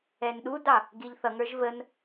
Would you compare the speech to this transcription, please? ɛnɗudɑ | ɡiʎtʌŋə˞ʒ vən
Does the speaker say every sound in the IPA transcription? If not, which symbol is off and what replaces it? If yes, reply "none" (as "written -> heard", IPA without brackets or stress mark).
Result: t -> θ